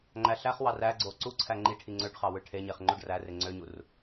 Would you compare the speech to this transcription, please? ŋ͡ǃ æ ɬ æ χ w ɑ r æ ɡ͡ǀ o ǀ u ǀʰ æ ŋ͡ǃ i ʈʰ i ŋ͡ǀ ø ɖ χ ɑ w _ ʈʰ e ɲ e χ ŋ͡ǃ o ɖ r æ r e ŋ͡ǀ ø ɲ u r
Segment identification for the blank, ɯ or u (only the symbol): ɯ